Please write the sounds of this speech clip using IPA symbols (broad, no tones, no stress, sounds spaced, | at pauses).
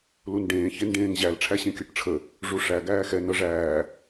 l u n ɖ ẽː ç e n ɖ ẽː ŋ ʑ æ l ʈ͡ʂʰ æ ɕ ẽ kʲ ɤ ʈ ʈ͡ʂʰ ə | ʐ u ʂ æ ɡ æː x ɛ n ɤ ʐ æː